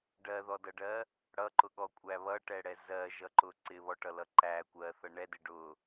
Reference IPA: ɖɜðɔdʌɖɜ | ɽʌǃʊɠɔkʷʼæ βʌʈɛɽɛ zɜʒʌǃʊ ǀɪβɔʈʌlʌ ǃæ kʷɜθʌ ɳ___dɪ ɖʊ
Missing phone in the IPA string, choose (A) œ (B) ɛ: B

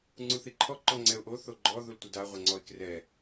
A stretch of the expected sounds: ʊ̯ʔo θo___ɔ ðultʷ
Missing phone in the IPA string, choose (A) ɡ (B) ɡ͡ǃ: B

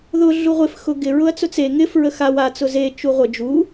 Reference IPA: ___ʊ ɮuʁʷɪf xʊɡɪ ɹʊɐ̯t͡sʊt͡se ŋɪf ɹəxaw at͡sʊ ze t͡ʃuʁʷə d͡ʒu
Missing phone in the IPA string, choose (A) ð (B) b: A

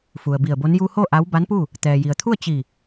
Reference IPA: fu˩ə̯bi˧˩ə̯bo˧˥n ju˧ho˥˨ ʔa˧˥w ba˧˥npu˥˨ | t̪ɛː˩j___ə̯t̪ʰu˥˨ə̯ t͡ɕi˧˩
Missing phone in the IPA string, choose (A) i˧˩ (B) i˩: B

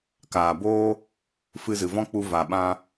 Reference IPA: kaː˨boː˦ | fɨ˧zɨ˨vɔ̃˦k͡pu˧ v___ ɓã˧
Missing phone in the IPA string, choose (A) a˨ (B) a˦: A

